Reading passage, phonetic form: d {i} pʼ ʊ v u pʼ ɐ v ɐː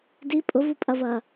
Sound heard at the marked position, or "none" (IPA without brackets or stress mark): i